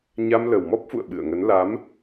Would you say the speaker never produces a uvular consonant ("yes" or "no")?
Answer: yes